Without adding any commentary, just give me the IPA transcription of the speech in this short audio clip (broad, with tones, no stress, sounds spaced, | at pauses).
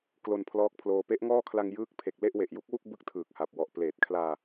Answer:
k l o˧ n pʰ l ɔː˦˥ k̚ pʰ l oː˧ p e˦˥ ʔ ŋ ɔː˥˩ kʰ l a˧ ŋ j ɯː˦˥ k̚ pʰ e˨˩ k̚ l e˥˩ ʔ w e˨˩ ʔ j u˦˥ k̚ w u˥˩ k̚ b ɯ˥˩ k̚ tʰ ɯː˨˩ k̚ h a˨˩ p̚ w ɔ˨˩ ʔ p l eː˨˩ t̚ kʰ l aː˧